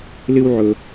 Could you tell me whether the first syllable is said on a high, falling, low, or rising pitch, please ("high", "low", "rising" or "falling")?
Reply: high